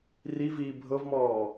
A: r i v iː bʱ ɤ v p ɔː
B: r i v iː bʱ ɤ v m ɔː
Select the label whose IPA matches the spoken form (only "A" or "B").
B